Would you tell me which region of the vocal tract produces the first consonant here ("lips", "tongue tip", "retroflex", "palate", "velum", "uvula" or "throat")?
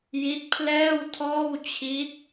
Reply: palate